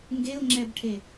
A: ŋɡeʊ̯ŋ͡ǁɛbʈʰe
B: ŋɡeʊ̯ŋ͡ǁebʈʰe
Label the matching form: A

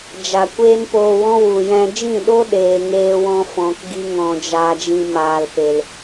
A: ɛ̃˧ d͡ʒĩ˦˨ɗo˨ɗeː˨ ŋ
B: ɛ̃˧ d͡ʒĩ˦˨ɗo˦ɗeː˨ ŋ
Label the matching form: B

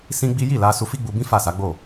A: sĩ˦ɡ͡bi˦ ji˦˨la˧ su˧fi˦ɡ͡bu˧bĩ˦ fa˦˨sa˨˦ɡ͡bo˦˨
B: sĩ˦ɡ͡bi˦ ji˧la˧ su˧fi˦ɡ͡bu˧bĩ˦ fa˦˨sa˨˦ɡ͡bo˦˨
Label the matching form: A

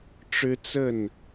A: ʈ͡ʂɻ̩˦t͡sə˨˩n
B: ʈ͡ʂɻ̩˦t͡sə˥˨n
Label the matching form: B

